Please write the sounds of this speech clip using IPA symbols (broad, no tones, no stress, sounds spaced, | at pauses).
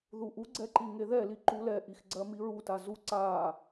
ð u ʔ u ɡ͡ǀ ɛ ǃ i ŋ e ð ɛ l i ǃ u l ɛ ʔ i x ɡ͡ǀ ɜ m i ɹ u t a z u ǀ a